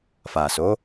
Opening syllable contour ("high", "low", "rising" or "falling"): low